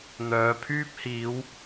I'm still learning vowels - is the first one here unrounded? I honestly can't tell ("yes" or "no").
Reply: no